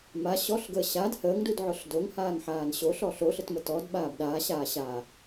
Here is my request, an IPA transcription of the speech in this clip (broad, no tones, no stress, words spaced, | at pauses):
ma ɕɔɬɡəː ɕad həːŋdudʕʊɬ doŋhaːŋħaːn ɕoɬɔ ɬoɬətmə tɔdɓaːb ɗaːɕaːɕaː